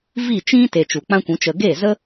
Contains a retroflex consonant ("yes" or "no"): no